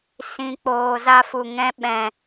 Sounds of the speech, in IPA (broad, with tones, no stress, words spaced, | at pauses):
sĩ˧k͡poː˧ za˦fu˧ ŋɛ̃˦ɓɛ̃˧